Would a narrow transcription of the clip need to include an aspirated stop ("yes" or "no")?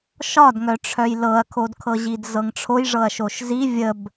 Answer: yes